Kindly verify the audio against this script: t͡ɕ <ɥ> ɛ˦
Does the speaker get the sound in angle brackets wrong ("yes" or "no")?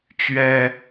no